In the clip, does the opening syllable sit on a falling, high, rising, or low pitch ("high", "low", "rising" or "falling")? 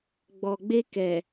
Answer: low